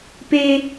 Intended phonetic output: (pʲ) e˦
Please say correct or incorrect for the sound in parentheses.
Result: incorrect